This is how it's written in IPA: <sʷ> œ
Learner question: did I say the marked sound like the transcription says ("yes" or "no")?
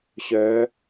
no